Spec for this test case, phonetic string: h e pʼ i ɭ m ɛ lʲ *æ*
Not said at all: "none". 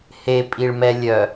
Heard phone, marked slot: œ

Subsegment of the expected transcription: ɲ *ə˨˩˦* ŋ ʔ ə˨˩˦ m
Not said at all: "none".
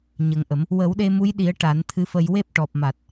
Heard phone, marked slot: ə˨˩˦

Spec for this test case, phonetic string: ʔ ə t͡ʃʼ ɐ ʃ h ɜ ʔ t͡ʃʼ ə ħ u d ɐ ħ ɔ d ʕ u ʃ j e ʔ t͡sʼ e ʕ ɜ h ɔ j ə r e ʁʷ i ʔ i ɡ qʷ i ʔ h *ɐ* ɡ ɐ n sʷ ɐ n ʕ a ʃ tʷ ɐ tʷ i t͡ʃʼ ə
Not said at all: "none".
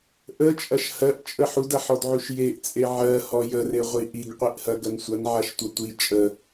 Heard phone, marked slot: ɐ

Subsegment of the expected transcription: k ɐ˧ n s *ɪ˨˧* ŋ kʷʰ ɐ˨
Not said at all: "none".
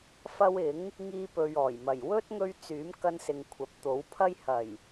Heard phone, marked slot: ɪ˨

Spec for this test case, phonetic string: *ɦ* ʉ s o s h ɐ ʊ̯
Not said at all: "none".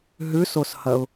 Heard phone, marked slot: ɦ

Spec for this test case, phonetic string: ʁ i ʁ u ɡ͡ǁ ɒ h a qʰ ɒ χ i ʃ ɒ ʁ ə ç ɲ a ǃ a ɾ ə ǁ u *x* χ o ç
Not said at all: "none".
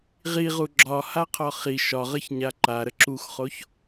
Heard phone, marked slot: x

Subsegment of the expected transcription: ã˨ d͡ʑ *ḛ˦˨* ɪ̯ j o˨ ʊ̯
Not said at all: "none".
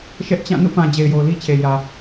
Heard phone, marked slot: e˨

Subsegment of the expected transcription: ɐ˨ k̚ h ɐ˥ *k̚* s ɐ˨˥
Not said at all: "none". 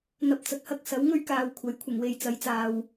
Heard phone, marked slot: k̚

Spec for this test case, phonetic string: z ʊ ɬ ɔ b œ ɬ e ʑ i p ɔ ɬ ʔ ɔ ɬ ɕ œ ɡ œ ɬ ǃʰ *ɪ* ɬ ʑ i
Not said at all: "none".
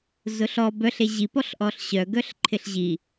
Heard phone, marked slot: ɪ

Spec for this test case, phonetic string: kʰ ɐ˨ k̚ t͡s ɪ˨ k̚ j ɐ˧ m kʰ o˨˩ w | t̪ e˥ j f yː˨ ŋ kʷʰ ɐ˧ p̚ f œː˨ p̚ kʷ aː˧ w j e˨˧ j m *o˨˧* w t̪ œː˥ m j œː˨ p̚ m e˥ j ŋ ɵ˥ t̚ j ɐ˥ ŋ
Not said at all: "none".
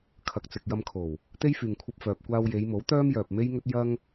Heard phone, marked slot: o˨˥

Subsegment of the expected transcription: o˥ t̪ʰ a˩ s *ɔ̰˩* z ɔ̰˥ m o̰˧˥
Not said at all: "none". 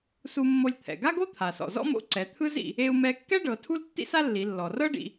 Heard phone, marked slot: ɔ̰˩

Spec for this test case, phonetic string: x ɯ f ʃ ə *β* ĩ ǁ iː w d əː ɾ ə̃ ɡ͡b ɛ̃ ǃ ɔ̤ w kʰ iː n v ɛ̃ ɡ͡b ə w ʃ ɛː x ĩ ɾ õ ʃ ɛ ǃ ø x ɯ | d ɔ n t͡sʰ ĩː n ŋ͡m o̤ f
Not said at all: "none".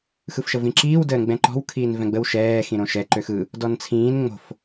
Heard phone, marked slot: v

